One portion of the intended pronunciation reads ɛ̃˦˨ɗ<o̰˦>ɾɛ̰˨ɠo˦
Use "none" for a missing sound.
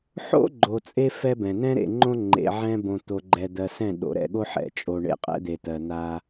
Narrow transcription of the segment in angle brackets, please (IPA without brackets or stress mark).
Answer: o̰˨